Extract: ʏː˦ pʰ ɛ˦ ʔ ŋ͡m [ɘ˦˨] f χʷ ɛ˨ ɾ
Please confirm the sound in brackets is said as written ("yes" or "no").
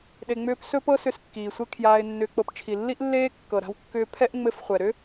yes